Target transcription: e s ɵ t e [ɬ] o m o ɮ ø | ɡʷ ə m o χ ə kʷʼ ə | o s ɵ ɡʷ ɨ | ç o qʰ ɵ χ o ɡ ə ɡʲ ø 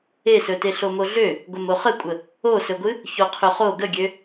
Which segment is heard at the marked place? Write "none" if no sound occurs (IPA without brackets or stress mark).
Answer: ɬ